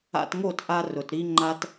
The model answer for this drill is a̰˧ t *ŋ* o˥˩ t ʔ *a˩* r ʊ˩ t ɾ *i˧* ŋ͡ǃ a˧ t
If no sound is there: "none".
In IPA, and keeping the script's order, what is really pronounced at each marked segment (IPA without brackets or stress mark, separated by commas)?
ŋ, a˧, i˧